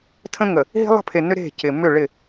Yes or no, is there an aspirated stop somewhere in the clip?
yes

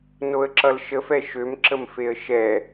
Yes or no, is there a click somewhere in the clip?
yes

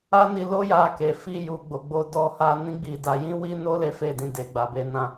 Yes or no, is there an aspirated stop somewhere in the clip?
no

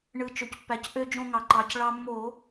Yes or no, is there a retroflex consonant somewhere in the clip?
yes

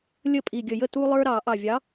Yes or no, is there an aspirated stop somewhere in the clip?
no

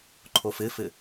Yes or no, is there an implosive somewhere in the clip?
no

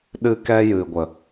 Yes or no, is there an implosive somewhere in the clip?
yes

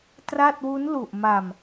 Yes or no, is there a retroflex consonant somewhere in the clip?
no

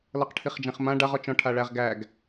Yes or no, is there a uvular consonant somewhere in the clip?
yes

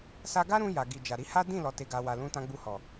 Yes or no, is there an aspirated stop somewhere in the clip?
no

